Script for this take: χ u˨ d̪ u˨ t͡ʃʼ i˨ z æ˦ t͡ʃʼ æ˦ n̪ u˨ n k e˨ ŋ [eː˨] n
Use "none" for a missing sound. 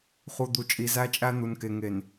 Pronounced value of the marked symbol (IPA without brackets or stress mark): e˨